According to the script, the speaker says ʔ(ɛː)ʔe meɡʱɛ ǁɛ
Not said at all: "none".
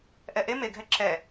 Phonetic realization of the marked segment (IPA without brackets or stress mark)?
ɛ